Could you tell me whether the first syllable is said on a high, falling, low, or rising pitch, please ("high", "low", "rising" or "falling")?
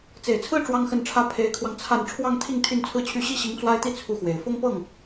low